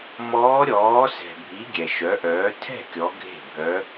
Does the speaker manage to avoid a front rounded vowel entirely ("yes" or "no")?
no